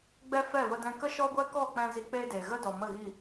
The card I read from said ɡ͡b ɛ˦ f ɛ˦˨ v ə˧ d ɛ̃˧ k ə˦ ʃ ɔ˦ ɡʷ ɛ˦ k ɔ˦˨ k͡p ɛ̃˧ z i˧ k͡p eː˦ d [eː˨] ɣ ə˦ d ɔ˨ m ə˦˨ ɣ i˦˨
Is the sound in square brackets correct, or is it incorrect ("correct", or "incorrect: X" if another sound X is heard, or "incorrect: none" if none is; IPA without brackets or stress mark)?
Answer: correct